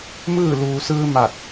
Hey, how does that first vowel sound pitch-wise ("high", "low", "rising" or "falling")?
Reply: falling